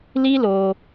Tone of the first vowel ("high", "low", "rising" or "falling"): high